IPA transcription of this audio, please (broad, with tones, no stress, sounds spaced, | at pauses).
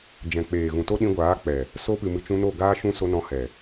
d͡ʒ ɛ̃˨ k͡p eː˨ ɣ ũ˨ t o˦ ɗ ĩ˧ ɡʷ aː˨˦ k͡p ɛ˨ | s o˧ p ɨ˨ m ɨ˨ t͡ʃ ũ˧ n o˦˨ ɡ aː˦ ʃ ũ˦ s o˧ n ɔ̃˧ h ɛ˨